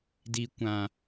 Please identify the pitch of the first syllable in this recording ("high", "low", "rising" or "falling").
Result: low